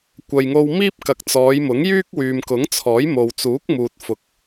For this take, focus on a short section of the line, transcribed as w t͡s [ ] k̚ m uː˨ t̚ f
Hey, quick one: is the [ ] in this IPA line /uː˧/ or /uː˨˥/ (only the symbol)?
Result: uː˨˥